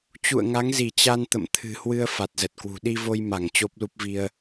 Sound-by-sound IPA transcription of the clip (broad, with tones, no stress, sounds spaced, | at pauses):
t͡ɕ ṵ˧˨ ə̯ ŋ a˨˦ ŋ z i˧˩ t͡ɕ a˧ n t̪ ə̰˧˨ m t̪ʰ ɨ̤˨˩ h w ɨ˧ ə̯ f a˨˩ t̚ z ə˨˩ t̚ k w ṳ˨˩ ɗ i˧ v o˧ j m a˧˩ ŋ t͡ɕ o˦˥ p̚ l u˦˥ p̚ v i˧ ə̯